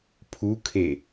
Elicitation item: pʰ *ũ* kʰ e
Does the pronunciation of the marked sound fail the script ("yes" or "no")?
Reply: yes